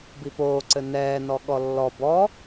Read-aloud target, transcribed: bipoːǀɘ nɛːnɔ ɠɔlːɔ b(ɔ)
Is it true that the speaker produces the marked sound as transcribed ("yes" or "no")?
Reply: yes